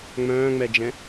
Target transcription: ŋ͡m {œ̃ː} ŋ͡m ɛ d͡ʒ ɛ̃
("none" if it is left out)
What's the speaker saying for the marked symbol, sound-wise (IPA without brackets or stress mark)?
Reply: œ̃ː